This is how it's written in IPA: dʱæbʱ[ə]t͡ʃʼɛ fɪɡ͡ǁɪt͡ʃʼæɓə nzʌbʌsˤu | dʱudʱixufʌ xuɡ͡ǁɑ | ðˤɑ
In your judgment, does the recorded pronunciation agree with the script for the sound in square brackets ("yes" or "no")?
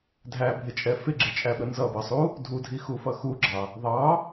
no